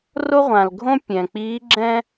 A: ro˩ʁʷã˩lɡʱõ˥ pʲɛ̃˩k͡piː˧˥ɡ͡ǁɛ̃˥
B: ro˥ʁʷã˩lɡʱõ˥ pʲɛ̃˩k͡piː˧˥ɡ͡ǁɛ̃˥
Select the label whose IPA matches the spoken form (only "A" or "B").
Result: B